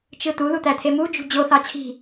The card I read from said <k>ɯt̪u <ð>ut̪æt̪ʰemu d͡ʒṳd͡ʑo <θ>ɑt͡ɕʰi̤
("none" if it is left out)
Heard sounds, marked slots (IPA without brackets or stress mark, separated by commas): t͡ʃ, ð, θ